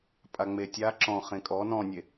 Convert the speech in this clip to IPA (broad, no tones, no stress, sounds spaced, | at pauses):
pʼ a ŋ͡m e tʲ a ǁ ɔ̃ χ ẽ kʼ ɔ n ɔ̃ nʲ e